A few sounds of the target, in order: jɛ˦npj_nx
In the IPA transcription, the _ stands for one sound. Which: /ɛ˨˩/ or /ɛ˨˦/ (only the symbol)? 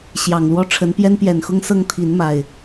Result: ɛ˨˩